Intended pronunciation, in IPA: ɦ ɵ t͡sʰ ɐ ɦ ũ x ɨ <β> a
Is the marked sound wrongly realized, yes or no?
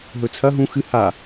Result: yes